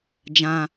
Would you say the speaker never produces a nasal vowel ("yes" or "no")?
no